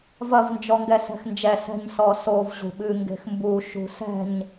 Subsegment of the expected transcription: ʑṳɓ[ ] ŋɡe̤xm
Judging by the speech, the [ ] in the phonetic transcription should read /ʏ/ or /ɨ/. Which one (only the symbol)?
ɨ